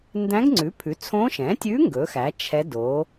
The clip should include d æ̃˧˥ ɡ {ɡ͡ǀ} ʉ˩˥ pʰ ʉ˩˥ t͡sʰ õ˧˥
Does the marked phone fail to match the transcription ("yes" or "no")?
yes